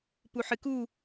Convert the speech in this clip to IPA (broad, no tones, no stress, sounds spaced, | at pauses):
p u ħ ɨ k u